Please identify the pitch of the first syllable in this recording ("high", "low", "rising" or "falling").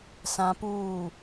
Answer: high